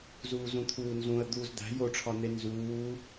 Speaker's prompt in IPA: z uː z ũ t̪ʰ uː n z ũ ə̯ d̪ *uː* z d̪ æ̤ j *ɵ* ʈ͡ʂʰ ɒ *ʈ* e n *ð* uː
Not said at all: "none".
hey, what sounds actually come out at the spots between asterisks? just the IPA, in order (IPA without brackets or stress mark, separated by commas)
uː, o, n̪, z